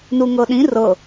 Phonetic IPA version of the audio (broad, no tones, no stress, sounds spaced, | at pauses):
n u ŋ ɤ ɗ ĩ r ɤ